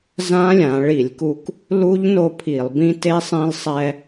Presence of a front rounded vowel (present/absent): absent